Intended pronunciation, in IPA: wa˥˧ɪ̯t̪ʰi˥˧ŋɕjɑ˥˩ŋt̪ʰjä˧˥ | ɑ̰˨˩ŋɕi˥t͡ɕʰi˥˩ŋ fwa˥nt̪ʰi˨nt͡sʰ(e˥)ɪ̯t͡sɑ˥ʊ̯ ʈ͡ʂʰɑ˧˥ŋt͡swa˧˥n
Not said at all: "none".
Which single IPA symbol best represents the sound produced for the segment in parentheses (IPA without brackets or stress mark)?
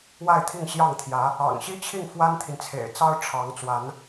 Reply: ḛ˨˩